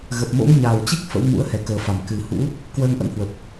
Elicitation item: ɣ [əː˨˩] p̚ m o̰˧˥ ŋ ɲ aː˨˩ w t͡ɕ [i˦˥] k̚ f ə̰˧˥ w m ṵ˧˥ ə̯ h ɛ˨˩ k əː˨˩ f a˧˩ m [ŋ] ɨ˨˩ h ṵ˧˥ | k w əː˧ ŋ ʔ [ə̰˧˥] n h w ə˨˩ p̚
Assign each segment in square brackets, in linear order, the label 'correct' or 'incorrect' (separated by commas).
incorrect, correct, incorrect, correct